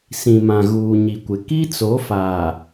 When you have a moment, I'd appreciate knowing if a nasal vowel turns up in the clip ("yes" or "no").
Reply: yes